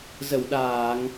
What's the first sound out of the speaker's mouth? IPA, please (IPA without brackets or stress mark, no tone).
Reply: z